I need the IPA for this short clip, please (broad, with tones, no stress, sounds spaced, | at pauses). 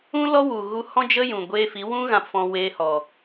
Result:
ũ˦ l ɔ˦ w u˨ ɣ u˧ h ɔ̃˦ d͡ʒ ə˦ j ũ˨ ɡʷ eː˧ f i˨˦ w ũ˦ ɣ ã˧ p f ɔ̃˧ w e˦ h ɔ˨